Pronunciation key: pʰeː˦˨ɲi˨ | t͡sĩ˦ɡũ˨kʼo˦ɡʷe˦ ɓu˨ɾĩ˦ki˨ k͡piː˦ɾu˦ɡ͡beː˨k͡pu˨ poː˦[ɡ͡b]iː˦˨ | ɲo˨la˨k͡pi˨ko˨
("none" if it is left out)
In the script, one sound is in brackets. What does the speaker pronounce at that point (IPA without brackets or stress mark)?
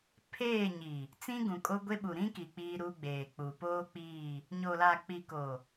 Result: k͡p